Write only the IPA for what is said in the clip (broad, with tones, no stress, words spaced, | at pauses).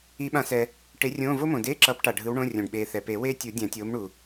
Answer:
i˨˩˦ɓã˨˩˦sɛ˩ | ʈe˨˥rʲõː˧˥˧ vo˥mõ˩deː˧˥˧ǁʌː˨˥p ʈa˩ɖʱɯ˨˥w ɳõ˧˥˧ rʲõ˩ɖɓeː˩ θɛ˩pe˨˩˦weː˥tʲu˨˩˦ dʲã˨˩˦tʲoː˨˥mɳu˩